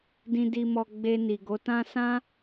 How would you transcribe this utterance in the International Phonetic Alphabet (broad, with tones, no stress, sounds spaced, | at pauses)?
d ĩ˨ d i˨ m ɔ˨ ɡ͡b e˧ n i˨ ɡ o˨˦ t ã˦ s ã˦